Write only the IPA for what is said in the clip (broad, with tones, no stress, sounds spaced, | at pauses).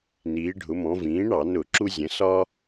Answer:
n iː˩˧ ɖʱ ʊ˩˧ m ɔ̃˩˧ v ĩː˩˥ ɳ ɑ˧˩˧ n ʊ˧˩˧ ǁ u˦ zʲ ə̃˩˥ s ɒ˦